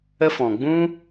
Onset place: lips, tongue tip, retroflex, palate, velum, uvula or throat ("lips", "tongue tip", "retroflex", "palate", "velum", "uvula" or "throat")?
lips